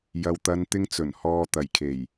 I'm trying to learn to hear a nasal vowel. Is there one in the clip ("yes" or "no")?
no